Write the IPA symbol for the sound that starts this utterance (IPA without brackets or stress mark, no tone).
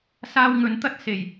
s